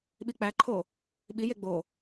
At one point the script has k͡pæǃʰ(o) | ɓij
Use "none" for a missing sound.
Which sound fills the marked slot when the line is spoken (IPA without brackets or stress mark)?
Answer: o